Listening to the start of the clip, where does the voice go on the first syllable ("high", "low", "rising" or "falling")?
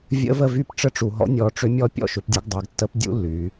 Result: rising